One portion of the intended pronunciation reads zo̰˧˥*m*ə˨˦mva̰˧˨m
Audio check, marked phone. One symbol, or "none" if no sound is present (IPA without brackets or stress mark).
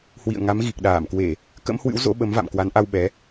ɓ